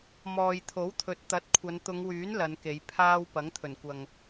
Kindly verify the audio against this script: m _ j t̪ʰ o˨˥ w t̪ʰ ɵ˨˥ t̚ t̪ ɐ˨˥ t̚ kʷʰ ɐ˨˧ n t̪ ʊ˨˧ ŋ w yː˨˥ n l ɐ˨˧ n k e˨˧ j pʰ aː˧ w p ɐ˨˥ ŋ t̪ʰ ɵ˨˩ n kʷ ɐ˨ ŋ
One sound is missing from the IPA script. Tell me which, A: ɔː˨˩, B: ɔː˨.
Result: B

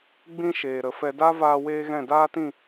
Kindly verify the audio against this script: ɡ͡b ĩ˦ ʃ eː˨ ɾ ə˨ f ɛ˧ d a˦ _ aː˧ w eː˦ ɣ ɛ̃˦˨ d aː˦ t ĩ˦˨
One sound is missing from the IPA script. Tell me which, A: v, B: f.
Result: A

